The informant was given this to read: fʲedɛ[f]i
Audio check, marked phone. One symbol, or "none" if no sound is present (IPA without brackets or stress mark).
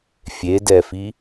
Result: f